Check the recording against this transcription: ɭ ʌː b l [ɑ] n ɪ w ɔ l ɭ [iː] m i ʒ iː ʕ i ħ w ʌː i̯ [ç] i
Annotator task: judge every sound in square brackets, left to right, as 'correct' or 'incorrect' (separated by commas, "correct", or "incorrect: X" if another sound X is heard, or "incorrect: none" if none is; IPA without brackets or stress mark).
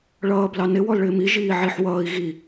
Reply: correct, incorrect: ɪː, incorrect: ɣ